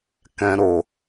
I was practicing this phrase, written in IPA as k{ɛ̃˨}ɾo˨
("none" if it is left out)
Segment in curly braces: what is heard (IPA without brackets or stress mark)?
ɛ̃˨